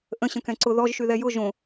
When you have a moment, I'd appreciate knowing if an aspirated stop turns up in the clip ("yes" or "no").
no